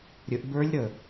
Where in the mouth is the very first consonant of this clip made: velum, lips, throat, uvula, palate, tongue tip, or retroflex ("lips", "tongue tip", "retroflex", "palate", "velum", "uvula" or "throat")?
tongue tip